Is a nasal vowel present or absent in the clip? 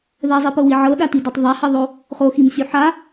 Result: absent